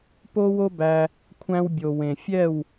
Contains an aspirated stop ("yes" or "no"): yes